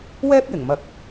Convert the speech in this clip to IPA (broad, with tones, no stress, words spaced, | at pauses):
wɛː˥p̚jɪ˨˩ŋmɐ˨k̚